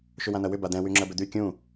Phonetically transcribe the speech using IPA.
ʃ ʏ w ã n̪ ɐ w ʏ b a d̪ ɛ̃ w y ŋ͡ǁ ɐ b ʏ d̪ y kʲ ũ

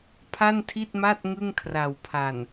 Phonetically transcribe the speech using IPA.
pʰ a˥˩ n tʰ i˥˩ t̚ m a˥˩ t̚ ŋ ɯ˥˩ ŋ kʰ r a˨˩ w pʰ a˨˩ n

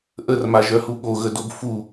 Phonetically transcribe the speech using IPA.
ʔ ə r m a ʒ œ h u ɠ o ɣ ə d o b f u

